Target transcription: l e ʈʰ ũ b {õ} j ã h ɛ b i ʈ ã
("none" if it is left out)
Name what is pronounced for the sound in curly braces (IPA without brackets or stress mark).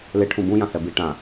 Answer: ũ